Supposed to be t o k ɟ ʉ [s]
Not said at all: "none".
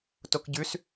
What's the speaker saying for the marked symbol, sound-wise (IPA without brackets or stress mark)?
s